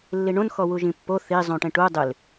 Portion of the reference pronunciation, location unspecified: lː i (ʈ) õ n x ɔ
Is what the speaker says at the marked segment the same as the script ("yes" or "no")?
no